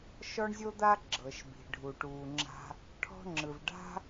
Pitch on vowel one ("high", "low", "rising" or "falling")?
high